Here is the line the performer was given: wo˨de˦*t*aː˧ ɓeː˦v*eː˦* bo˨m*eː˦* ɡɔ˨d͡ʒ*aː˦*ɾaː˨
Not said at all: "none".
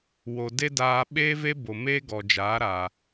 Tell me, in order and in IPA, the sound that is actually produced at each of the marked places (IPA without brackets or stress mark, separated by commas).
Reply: d, e˦, eː˦, aː˨˦